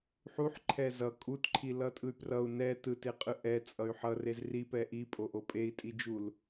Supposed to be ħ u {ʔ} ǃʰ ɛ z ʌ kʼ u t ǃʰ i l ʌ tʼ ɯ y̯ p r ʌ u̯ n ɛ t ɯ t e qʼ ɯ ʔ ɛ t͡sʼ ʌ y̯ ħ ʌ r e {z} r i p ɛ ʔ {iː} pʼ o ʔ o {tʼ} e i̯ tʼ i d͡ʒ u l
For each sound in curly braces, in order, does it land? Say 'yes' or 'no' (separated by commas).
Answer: no, yes, no, no